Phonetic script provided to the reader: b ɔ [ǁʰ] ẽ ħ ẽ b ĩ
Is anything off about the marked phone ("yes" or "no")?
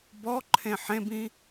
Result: yes